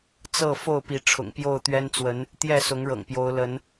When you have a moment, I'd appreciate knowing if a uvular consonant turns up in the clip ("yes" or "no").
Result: no